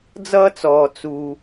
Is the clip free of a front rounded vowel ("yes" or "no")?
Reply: yes